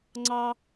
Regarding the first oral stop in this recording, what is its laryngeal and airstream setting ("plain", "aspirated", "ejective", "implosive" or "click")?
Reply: click